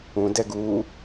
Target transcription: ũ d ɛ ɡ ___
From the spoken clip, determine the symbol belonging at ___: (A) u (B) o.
A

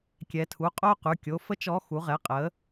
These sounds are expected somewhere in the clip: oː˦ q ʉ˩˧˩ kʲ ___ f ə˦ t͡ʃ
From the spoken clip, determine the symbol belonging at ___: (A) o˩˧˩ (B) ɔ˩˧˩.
A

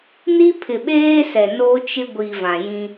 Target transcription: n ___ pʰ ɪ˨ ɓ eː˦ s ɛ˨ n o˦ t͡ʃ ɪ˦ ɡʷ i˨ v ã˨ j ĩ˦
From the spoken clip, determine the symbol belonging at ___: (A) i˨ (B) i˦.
B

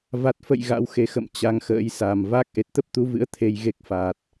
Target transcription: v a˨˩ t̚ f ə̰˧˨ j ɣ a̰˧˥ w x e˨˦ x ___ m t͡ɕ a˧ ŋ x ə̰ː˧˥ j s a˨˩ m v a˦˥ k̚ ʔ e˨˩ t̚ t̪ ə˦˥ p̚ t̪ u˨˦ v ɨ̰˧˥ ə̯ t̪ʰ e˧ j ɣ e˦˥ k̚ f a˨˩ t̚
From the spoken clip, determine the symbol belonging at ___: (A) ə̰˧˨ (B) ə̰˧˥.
A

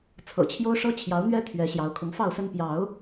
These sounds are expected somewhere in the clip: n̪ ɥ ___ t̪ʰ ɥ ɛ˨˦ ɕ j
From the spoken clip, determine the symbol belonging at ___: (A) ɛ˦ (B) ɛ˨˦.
A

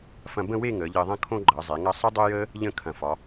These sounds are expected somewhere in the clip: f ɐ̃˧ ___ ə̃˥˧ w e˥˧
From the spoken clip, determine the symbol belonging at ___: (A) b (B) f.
A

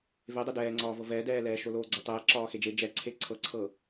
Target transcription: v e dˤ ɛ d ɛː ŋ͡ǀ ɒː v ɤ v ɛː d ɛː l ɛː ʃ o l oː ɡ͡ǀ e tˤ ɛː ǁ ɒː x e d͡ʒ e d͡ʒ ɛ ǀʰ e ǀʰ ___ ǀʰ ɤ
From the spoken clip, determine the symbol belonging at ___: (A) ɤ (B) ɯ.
A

